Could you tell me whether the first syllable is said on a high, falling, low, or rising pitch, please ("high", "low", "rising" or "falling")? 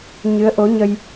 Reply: rising